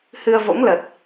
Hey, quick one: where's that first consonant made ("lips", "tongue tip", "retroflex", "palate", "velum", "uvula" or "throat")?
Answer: throat